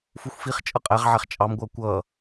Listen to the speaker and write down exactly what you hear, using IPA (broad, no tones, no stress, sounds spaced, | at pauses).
f u xʷ f i χ t͡ʃʼ ʌ qʼ æ ʁ ʕ æ χ t͡ʃʼ ɑ m ɡʷ ʌː kʷ ʌː